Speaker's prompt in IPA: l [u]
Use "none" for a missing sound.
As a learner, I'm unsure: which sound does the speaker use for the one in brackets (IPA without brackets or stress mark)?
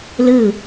ɯ